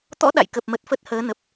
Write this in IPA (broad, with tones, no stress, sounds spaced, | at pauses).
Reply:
t̪ ɔ̰˧˥ ɗ a̰˧˨ j k ə˨˩ p̚ m ə˨˩ t̚ f ə˦˥ t̚ h əː˨˦ n ə˨˩ p̚